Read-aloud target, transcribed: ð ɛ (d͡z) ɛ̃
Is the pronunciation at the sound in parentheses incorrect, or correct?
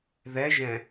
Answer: incorrect: ʒ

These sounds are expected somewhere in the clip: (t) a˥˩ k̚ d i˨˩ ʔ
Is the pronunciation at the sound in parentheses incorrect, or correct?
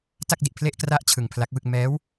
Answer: correct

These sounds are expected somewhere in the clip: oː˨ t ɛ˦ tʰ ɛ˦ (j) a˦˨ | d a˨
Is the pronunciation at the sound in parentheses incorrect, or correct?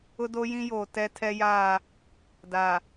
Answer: correct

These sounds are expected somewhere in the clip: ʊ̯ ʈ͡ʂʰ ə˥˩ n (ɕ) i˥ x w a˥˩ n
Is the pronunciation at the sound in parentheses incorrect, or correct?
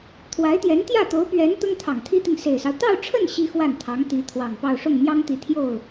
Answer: correct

